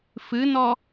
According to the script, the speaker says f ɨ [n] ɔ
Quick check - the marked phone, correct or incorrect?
correct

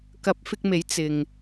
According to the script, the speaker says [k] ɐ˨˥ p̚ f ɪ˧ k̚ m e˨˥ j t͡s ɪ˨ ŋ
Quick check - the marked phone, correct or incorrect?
correct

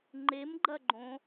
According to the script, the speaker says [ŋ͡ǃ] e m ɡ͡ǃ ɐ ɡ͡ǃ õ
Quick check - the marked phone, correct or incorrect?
correct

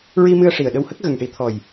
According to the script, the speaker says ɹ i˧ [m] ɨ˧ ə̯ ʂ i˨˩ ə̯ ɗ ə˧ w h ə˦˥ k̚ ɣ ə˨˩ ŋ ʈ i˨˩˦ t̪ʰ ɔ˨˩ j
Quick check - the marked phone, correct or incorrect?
correct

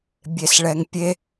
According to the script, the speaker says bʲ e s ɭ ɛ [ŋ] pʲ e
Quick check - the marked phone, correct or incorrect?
correct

